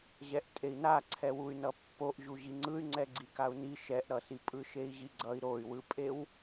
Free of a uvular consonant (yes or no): yes